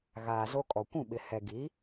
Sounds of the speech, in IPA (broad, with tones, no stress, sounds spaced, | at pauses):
ɣ aː˨ z o˦ kʼ ɔ˨ kʷ ũ˦˨ ɓ ɪ˨ h ɛ˨ ɡ i˨˦